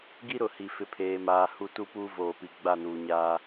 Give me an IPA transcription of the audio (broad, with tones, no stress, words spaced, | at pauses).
ɡi˦ɾʊ˨hi˨ fɪ˨pʰeː˨maː˨ hu˦ tu˦puː˦voː˨pi˨ ɡ͡ba˦˨nuː˨ɲaː˦